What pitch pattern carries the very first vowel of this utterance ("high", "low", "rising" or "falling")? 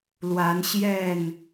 rising